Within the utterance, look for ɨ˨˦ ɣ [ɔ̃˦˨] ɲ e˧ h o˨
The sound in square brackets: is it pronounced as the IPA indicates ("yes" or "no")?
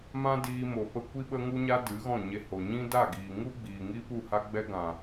yes